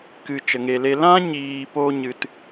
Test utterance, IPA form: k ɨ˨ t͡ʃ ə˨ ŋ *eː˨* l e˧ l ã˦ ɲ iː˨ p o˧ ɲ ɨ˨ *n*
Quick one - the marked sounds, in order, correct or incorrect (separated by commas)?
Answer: incorrect, incorrect